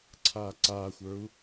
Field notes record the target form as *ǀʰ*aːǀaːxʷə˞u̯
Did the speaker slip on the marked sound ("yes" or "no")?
no